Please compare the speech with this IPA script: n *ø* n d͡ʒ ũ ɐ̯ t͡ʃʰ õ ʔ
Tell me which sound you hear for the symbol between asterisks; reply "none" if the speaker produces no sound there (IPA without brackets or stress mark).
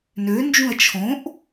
ø